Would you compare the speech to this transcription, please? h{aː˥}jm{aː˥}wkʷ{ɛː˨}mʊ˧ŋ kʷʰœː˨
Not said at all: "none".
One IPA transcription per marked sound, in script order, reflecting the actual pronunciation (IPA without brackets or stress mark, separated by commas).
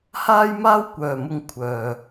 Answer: aː˥, aː˥, œː˨